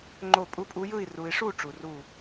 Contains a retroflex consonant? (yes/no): yes